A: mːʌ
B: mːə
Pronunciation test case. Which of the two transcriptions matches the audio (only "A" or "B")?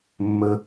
B